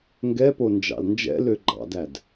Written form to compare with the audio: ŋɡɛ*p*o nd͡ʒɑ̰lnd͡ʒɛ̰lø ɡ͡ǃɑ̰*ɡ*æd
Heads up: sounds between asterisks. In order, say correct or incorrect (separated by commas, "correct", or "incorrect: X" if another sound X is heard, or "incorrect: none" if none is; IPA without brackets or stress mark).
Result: correct, incorrect: d